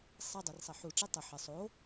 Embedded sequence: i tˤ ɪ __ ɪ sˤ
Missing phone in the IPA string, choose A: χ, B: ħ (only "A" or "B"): B